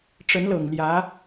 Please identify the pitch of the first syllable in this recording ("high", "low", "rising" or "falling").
rising